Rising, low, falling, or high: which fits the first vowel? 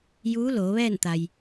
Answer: rising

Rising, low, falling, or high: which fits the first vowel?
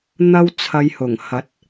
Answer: high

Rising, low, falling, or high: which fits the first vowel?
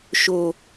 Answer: low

